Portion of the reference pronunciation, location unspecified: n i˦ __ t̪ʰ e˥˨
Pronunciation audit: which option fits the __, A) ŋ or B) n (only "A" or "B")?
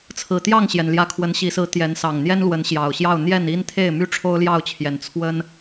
B